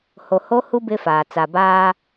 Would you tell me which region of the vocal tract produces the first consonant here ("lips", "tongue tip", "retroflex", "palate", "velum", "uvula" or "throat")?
throat